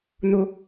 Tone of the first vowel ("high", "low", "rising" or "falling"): high